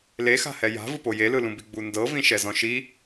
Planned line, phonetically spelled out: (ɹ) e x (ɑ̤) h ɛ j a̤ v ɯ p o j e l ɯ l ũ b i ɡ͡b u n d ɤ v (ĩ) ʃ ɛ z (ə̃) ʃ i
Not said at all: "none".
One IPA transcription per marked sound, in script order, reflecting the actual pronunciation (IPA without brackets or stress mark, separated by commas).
l, a̤, ĩ, ɔ̃